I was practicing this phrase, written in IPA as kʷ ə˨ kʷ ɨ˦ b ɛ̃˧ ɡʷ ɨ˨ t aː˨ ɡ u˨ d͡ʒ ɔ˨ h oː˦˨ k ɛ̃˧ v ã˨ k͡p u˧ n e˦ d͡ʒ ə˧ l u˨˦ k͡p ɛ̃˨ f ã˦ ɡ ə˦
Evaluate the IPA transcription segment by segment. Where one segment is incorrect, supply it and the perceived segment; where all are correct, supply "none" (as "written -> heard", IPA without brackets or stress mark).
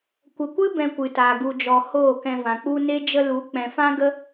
ɡʷ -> kʷ